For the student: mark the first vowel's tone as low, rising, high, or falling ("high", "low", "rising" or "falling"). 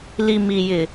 low